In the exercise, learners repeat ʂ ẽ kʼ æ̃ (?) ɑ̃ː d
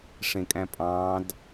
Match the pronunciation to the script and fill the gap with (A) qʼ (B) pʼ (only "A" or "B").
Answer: B